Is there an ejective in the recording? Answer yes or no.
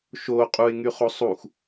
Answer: yes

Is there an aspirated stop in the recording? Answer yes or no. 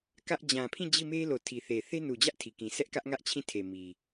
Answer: yes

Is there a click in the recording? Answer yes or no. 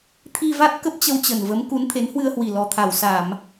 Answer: no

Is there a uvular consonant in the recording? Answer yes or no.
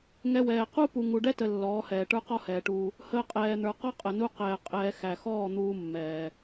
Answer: yes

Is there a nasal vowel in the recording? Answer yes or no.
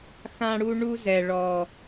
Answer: yes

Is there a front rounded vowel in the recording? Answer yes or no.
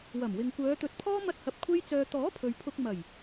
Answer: yes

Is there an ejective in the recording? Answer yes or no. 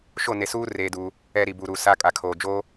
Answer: yes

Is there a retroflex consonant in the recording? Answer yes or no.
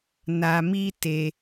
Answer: no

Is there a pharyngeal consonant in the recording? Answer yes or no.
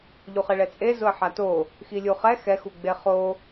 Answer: yes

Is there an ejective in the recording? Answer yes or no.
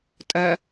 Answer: yes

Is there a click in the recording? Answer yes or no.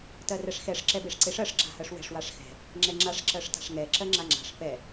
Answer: yes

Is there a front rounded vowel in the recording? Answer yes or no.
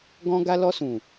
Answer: no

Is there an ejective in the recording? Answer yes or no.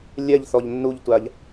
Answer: no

